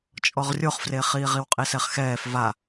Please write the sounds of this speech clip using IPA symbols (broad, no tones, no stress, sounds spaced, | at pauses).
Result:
t͡ʃʼ ɔ ʁ rʲ o χ f r e χ iː ʁ i w qʼ i s ɛ χ x ɛː f v a